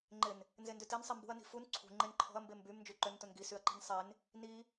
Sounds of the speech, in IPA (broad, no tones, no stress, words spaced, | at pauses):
ŋ͡ǃɪn | nzendʏtensˤi mbṳɐ̯ni̤ fun ǀʰṳ ŋ͡ǃenǃʰɔ̤ɐ̯ mbembym nd͡ʒyǃʏntʊn ɡisyɐ̯ǃi̤n sˤen | ni